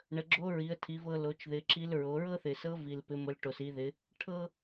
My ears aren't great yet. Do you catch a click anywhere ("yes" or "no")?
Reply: yes